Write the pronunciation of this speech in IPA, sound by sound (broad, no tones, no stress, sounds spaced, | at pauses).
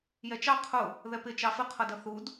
j ɛ t͡ʃ ɑ qʰ ʊ | ð ɛ p ɪ t͡ʃ ɑ f ɪ qʰ ʌ d ʌ θ u d